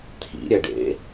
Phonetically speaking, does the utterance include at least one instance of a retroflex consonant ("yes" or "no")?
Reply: yes